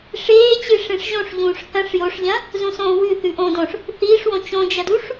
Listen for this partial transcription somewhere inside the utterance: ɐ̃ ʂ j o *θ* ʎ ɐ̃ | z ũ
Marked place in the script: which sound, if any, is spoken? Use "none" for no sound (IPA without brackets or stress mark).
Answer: ʂ